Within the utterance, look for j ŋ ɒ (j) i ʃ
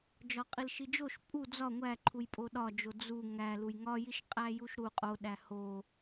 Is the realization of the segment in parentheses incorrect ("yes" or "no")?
no